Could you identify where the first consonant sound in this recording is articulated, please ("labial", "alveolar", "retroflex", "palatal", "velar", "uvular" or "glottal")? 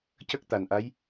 palatal